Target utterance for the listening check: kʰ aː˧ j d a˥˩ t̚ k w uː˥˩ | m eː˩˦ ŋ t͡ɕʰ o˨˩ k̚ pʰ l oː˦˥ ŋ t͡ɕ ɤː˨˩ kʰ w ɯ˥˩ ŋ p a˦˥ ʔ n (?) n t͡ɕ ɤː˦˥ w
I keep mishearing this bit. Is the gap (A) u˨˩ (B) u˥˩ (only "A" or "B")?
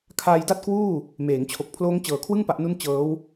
B